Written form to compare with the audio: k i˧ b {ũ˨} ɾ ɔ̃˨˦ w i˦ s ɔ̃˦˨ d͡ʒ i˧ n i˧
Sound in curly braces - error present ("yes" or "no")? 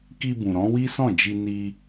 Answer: no